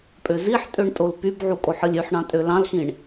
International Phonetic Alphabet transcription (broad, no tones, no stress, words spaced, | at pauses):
pʼøziħtʼøɳ tʼolpybʕu kʼoħɯlʲyħɳɑ̃ tʼølɑ̃lxĩɳ